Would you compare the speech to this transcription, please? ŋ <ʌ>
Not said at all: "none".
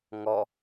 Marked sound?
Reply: ɔ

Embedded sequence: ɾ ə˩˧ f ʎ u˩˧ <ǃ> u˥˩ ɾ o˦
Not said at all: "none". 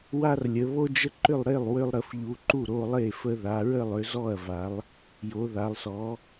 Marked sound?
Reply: ǃ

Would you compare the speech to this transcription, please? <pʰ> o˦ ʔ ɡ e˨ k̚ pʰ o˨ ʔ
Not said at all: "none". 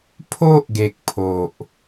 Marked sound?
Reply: pʰ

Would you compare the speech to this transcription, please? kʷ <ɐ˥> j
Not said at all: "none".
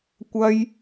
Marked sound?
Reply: ɐ˥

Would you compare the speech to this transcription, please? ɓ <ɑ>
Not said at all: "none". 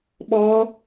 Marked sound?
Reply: ɔ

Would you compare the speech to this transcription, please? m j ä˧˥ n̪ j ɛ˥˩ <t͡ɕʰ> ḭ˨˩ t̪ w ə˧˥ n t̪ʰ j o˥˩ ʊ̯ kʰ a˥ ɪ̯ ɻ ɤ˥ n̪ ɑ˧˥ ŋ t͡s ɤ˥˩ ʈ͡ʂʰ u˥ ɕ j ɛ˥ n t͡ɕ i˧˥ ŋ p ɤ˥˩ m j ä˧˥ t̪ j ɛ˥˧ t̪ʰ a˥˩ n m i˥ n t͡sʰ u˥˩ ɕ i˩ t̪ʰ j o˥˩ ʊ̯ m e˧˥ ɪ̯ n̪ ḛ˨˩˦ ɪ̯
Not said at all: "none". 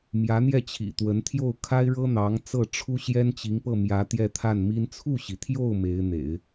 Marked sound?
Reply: t͡ɕʰ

